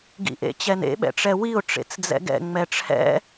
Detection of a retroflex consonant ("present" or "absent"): present